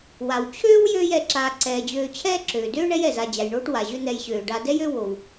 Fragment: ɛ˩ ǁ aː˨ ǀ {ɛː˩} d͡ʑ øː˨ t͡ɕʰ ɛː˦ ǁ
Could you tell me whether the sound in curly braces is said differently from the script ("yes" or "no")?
no